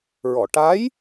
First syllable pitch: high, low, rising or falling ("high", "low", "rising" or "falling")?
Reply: low